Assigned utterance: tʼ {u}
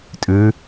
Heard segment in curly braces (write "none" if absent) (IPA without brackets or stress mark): ʉ